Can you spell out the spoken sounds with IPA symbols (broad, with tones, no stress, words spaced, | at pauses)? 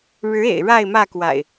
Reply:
ɻɻ̩˨˦ ḛ˨˩ɪ̯ɻa˥˨ɪ̯mä˥˨kwa̰˨˩ɪ̯